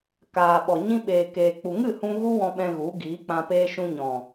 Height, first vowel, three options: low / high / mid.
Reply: low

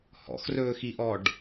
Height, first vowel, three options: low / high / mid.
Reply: mid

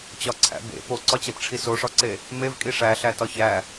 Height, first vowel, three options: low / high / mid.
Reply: low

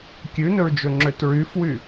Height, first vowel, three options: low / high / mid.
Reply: high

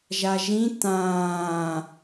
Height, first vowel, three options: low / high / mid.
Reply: low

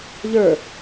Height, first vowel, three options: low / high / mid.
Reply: mid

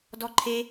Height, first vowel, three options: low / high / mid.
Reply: mid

